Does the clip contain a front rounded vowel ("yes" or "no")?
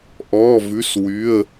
yes